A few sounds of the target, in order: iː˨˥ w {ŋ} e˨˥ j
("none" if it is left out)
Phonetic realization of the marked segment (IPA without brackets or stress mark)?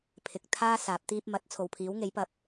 ŋ